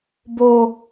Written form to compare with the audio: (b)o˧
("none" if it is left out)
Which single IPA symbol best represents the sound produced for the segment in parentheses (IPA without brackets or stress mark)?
b